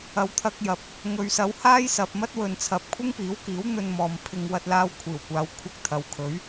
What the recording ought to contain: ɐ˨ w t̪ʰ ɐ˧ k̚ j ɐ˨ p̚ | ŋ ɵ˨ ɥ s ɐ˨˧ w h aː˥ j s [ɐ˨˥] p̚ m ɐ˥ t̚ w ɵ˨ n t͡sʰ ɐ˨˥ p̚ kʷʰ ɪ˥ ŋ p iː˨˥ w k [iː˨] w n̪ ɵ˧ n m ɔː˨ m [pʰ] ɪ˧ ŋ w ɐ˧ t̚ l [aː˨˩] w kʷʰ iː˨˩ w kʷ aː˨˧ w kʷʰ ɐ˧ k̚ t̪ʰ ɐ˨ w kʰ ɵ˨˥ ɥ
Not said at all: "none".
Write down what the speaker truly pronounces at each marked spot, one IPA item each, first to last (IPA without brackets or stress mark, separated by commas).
ɐ˨, iː˨˥, pʰ, aː˧